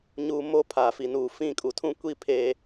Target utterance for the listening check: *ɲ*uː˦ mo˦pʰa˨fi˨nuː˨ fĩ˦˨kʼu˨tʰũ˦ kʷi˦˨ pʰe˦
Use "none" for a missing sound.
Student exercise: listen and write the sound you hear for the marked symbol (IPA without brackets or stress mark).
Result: ɲ